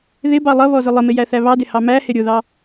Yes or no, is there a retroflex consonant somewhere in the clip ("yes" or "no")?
no